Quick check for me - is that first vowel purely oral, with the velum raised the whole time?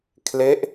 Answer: yes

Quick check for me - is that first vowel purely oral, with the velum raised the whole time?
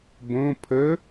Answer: no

